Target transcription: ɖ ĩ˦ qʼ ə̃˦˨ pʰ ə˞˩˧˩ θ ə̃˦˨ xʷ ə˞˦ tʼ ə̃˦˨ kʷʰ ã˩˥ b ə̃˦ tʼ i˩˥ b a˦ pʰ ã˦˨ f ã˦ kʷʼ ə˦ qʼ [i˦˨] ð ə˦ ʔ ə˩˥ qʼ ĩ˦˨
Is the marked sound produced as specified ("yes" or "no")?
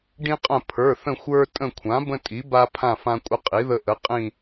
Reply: no